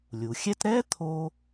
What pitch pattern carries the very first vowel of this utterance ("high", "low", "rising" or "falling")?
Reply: low